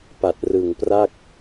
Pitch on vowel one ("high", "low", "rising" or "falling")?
low